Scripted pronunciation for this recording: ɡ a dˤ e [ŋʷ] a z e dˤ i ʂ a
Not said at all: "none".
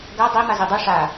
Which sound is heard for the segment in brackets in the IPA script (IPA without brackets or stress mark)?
m